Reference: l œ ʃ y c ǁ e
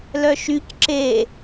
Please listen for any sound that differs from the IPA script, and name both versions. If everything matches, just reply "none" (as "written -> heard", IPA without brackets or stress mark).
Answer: none